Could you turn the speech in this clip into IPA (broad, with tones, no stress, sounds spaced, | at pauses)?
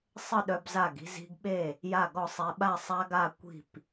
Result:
sˤ ə˥˨ ɗ œ˦ b z a˥˨ ɡ i̤˦ z i̤˦ ɡ ɓ e˥˨ | j a˥˨ ɡ ɔ˥˨ sˤ ɛ˦ ɓ a˥˨ sˤ a˦ ɡ a˥˨ kʷ i̤˥˨ p